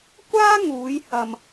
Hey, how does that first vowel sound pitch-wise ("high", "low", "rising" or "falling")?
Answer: high